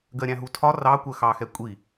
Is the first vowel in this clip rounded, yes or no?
no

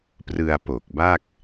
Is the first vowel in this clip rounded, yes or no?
no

